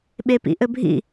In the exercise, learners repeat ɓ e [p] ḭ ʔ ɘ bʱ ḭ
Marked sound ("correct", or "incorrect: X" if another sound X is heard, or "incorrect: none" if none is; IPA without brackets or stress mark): correct